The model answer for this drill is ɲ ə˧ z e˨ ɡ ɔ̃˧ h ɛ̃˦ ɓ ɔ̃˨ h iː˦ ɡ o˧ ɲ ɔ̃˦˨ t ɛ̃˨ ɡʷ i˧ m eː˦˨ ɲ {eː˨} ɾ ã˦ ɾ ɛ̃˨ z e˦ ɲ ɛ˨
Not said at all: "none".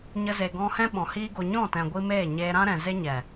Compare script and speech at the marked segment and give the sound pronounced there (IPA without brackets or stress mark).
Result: eː˧